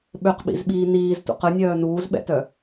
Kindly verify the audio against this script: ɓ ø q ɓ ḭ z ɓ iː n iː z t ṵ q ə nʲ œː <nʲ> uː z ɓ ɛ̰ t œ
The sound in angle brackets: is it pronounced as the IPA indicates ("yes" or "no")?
no